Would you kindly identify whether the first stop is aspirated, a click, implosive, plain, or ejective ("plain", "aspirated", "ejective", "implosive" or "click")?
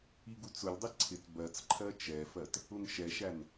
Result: plain